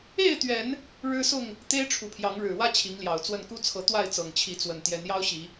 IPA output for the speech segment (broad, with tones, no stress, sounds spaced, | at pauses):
e˥˨ ɪ̯ t̪ ɥ ɛ˨˦ n | ɻ ɻ̩˦ s ʊ˥˨ ŋ | t̪ e˦ ɪ̯ ʈ͡ʂʰ u˨˦ pʰ j ɑ˨˦ ŋ ɻ ɻ̩˨˩ w ä˦ t͡ɕʰ i˨˦ ŋ l j ɑ˨˩ ʊ̯ t͡s w ə˥˨ n k u˦ t͡sʰ ɤ˨˦ t̪ w a˥˨ ɪ̯ t͡s ɤ˨˩ ŋ t͡ɕʰ i˨˦ t͡s w ə˨˩ n t̪ j ɛ˨˦ n j ɑ˦ ʊ̯ ɕ i˨˦